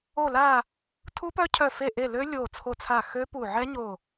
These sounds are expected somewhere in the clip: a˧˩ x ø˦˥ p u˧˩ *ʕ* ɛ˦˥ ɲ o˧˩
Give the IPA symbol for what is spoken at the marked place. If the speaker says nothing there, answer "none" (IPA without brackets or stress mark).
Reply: ʕ